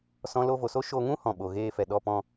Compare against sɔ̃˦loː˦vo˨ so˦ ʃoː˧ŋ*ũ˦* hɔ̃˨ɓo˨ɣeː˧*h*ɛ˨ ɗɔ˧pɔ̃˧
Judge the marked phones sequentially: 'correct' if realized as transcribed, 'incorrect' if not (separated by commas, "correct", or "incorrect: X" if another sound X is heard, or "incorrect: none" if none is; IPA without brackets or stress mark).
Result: correct, incorrect: f